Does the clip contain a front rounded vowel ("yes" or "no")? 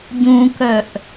yes